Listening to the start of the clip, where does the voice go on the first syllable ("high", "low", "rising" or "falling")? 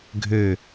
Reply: low